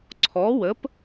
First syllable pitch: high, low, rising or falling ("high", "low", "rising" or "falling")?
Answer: rising